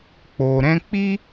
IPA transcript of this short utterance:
k͡po˨ ɾɛ̃˧ k͡pi˦

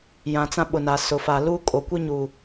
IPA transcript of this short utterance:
jã˨t͡sã˦ɓʊ˨na˨ sʊ˨fa˨lu˦ kʼo˨kʷi˦ɲu˨

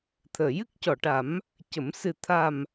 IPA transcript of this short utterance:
t̪ʰəː˨˩˨jɨ˦˥k̚ cɔ˨˩˨ʈa˨˩˦m | cə˨˩˦m sɨ˨˩t̪ʰa˨˩m

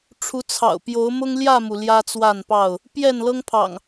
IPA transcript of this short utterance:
ʈ͡ʂʰu˨˦ t͡sʰɑ̰˨˩ʊ̯pjo˨˦ʊ̯mʊ˦ŋ ljä˥˨mu˩ ljä˦t͡swa˥˨npɑ˥˨ʊ̯ | pjɛ˥˨nlɤ˦ŋpʰɑ̰˨˩ŋ

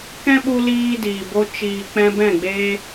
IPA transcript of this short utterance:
kɛ̃˦ɓu˧ liː˦diː˨bo˦ t͡ʃiː˨k͡pɛ̃˧ bɛ̃˦˨ɡ͡beː˦

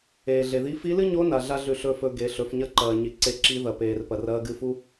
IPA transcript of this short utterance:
eː˩ɮe˩ði˧˥ fi˧˥lɨ˥ɲo˧˥ na˩˧ɮa˥ɮʉ˧ ɬɵ˧˥fɵ˧ ɡe˩˧ɬɵ˩˧f ɲɐ˥ǃɐː˩ ɲi˩ǀe˧ ǁi˧˥ ðɐ˩peː˩rpɐ˩r ɐː˧˥ɡɨ˧˥fu˥

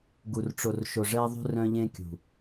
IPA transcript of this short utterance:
ɡu˨rʈ͡ʂo˨rʃo˨ ʐɛ˦ðˤṳ˦ rœ̃˦ʎẽ˦kʲṳ˨

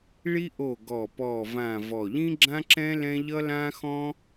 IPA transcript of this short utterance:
ɭi˥ʔo˦˨ ɡɔ˦˨pɔː˦˨vã˦˨ vɔ˦˨ ʎĩ˥ɡ͡ǁã˥ǁɛ̃˥ lɛ̃˥ ʎʌ˥lãː˥xɔ̃˥

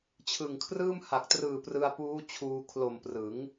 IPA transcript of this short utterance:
t͡ɕʰɯ˨˩ŋkʰrɯː˥˩m ha˨˩k̚trɯː˨˩ prɯ˧a̯puː˦˥ t͡ɕʰuː˧ kʰlo˨˩mprɯ˩˦ŋ

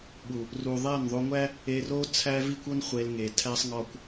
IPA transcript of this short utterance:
ɓu˨ | ru˨ðˤæ˦˨nðˤo˧ŋʷæ˦ | e˧ro˦ t͡sʰæ˦vi˦kʷo˦n χʷe˧lŋe˨ tʰæ˦sˤŋɒ˦kʷ

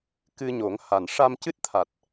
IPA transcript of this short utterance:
kɨ˧ ɲo˨˩˦ŋha˨˩n ʂa˧m cɨ˦˥t̚t̪ʰa˨˩t̚

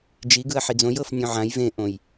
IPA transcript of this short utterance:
d͡ʒi ɡɯɐ̯ħid͡zõj ɤf nʲõʕãj vẽʔõj

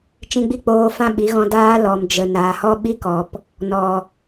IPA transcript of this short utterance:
t͡ʃĩ˧ɡ͡bi˦k͡poː˧ fã˦ɓi˨˦ɣɔ̃˧ daː˦lɔ˨m d͡ʒə˨ naː˨hɔ˦ɓi˦kɔ˨p | nɔ˨

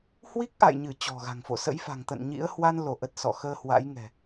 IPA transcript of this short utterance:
hwi˦˥k̚ʔa̰˧˨jɲɨ˧˩ t͡ɕɔ̤˨˩ɣa̤˨˩ŋfo̰˧˨ sə̰˧˥jfa̤˨˩ŋt̪ə̰˧˨n ɲḭ˧˥ə̯ hwa˧nlo˧˩ʔə˨˩t̚ sɔ̰˧˨xəː˧hwa̰˧˥jŋɛ̤˨˩

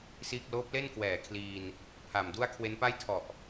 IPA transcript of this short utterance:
siː˥˩k̚ loː˦˥p̚le˥˩n kwɛː˨˩kʰliː˧n | pʰa˨˩mdu˥˩a̯ kʰwe˦˥npa˥˩j tʰɔ˨˩ʔ

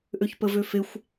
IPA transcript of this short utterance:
ʔøçpəvøfexʷ

